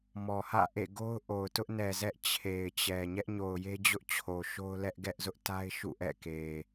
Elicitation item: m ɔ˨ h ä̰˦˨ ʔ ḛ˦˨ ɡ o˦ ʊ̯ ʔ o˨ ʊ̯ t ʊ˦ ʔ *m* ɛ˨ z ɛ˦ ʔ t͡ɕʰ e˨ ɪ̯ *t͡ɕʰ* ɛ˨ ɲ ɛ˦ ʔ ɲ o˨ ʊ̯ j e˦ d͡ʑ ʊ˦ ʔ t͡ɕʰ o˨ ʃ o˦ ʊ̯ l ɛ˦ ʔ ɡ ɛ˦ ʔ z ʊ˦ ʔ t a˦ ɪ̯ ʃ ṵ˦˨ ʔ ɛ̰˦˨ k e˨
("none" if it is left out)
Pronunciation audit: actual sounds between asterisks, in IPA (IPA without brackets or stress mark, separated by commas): n, t͡ɕ